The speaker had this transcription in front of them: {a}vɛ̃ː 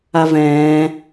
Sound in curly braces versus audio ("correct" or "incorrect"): correct